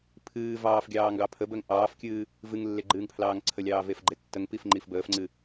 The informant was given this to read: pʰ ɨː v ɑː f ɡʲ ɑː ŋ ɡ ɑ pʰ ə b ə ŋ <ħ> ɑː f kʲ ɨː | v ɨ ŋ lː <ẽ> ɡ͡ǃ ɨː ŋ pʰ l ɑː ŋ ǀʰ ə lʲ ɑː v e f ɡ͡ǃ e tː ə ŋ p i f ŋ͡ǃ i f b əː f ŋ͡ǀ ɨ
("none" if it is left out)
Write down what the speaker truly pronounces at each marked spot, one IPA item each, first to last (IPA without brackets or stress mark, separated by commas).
ʔ, e